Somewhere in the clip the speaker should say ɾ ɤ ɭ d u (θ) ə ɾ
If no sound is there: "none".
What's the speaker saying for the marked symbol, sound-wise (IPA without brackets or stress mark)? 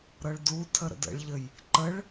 tʰ